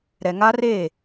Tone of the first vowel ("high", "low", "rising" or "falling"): low